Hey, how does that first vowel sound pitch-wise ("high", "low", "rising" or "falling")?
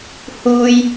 high